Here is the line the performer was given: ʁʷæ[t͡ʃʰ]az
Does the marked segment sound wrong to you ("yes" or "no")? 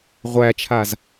no